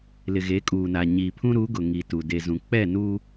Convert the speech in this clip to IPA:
l ɪ˨ ɣ e˨˦ kʼ uː˨ n a˨ ɲ iː˨ pʰ ũ˦ ɾ u˨˦ ɡ ʊ˨ ŋ i˨ t u˨ d e˨ z ũ˨ k͡p ɛ˦˨ n u˦

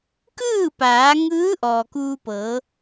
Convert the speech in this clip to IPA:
k ɯː˥˨ p aː˩˧ ŋ ɯː˧˥ ʔ ɔː˩ k uː˧ p ɤː˩˧

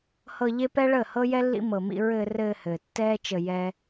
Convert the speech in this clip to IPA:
h ɤ˧ ʎ e˦ p ɛ˦ ɭ əː˦˨ h ɤ˦ j ɛ˦ lː ḭ˦ m ɤ˨ m ḭ˧ ɹ ɘː˧ r ɘː˧ h ɘː˨ tː ɛː˦ t͡ʃ ə˧ j ɛː˦

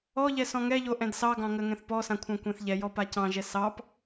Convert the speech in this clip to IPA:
ɔ ʎ ɛ s ɔ̃ ŋ ɛ ʎ o ʔ ɛ̃ d s ɑ ɡ ɑ̃ ŋ ɜ ŋ ɛ̃ θ p ɔ s ã kʷʰ ɑ̃ kʷ ɛ̃ θ ʎ ɛ j ɔ p a c ɑ̃ ʒ ɛ s ɑ p

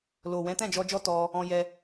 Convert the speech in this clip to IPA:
l o˨ w ɛ̃˨˦ t ɛ̃˦˨ d͡ʒ ɔ˧ d͡ʒ ɔ˦ t ɔ˧ | ɔ̃˧ j ɛ˧

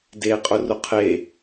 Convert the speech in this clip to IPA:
d eː qʼ ʊ r ʊ qʰ e

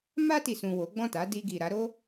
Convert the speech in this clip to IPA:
m a˧ t i˨ s ũ˨ w o˨˦ ɡ͡b ɔ̃˦˨ t a˨˦ d i˧ ɡ i˨ ɾ a˨˦ ɾ o˦

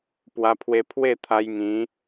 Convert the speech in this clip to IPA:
p w a˧ pʰ w e˧ pʰ w e˥˧ t̪ʰ a˧ j ŋ ĩ˨˦

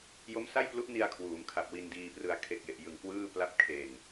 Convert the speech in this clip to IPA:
j o˦˥ m s a˥˩ j p l u˦˥ ʔ n i˧ a̯ kʰ w uː˩˦ m kʰ a˨˩ p̚ w i˧ n d iː˧ p r ɯ˧ a̯ kʰ e˨˩ k̚ j e˨˩ ʔ j ɯ˨˩ ŋ k w ɯː˥˩ p l a˥˩ p̚ kʰ e˨˩ n

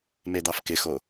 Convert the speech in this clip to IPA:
m e d̪ ɑ f k ɪ x o

